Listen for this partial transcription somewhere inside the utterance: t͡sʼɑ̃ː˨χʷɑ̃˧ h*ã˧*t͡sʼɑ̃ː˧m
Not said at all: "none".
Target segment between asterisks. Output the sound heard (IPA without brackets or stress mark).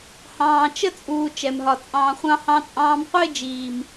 ɑ̃˧